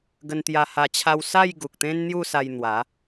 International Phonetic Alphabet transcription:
ɡ ə˧ n t̪ j a˧ h a˧ t͡ɕʰ a˦ w s a˥˧ j ɡ u˨ k̚ t̪ ẽ˦ n n̪ j u˥˧ s a˧ j n̪ w a˨˦

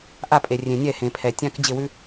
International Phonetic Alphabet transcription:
ʔ a˥˩ pʼ e˩ rʲ ẽ˩ nʲ ɛ˥˩ h ẽ˩ pʰ ɛ˩ tʲ ã˥ k d͡ʑ ɪ˥˩ w ʉ˥

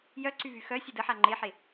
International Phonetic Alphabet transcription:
j œ ǀ y v y x œ sʲ ə d ə ħ a ŋ͡ǃ e ħ e

